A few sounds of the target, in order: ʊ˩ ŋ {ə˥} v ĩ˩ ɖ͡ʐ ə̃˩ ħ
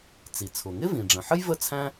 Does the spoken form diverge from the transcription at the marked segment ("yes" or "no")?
yes